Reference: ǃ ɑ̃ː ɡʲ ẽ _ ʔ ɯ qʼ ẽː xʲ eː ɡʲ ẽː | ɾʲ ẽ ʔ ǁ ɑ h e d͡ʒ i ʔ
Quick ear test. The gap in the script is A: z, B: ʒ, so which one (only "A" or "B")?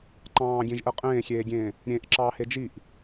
B